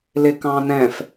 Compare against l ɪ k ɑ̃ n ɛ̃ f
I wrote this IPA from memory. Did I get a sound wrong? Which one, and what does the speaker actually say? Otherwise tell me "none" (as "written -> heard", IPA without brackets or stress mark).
none